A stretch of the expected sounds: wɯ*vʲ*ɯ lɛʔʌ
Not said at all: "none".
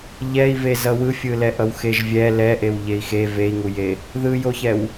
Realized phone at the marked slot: fʲ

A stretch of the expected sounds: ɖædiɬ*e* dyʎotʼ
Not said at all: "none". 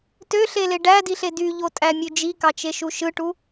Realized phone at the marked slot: e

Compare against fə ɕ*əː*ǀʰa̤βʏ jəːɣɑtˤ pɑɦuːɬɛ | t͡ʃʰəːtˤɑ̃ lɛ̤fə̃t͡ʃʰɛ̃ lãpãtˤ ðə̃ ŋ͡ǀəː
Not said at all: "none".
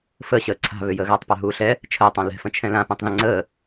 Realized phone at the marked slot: əː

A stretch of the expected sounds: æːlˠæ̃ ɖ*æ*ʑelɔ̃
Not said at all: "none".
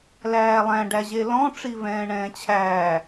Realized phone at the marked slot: æ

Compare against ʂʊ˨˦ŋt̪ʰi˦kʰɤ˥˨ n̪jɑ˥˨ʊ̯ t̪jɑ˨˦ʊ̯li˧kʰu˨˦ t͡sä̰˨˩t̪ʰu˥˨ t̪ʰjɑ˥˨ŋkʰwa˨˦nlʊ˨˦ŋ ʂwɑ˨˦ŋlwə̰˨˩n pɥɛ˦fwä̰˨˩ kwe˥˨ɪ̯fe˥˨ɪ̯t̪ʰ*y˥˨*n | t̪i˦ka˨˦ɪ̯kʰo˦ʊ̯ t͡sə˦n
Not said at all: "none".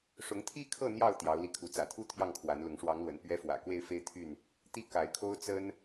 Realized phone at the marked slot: y˥˨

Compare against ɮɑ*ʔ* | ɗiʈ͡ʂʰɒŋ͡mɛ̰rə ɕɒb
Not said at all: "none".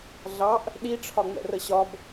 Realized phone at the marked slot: ʔ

